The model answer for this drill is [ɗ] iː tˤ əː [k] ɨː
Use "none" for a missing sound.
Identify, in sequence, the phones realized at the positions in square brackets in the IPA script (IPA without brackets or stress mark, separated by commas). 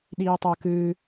ɗ, k